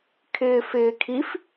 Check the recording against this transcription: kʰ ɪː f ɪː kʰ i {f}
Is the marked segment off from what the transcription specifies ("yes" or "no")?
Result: no